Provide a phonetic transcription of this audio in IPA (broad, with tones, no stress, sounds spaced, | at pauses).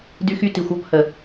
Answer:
d y˦ x y˦ t i˨ xʷ ɔ˦ p h ə˨